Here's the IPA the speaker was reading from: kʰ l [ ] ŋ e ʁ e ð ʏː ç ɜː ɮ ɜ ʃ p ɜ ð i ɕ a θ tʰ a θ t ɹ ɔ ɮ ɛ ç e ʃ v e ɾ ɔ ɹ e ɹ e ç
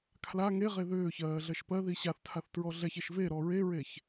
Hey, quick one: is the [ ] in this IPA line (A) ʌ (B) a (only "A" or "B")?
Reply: B